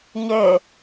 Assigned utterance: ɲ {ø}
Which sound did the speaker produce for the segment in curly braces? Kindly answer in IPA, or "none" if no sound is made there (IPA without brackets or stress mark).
ø